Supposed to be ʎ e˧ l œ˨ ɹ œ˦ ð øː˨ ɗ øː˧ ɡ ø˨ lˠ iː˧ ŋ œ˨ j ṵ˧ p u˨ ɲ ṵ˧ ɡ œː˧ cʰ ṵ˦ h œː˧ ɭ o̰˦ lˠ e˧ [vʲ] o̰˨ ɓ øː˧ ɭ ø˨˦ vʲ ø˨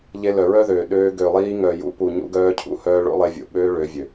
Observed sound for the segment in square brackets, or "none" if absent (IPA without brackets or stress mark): vʲ